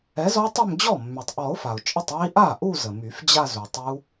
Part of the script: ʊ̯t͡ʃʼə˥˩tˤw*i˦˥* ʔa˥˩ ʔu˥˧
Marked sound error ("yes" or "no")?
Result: no